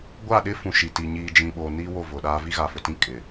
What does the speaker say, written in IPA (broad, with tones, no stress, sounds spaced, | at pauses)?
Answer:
ɡʷ a˦˨ ɗ ɪ˦ f ũ˨ ʃ i˨ t i˨ ɲ iː˨ d͡ʒ ĩ˨ ɓ o˨ n i˦ w o˦˨ v ʊ˨ ɗ aː˦ v i˦ ɣ a˨ f ʊ˨ t ĩ˦ kʼ ɪ˨